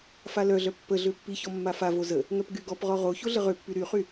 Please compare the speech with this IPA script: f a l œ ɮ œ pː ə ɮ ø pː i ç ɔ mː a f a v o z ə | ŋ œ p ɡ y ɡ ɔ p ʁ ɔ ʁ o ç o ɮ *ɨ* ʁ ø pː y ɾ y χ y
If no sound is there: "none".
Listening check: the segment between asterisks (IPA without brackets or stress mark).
ə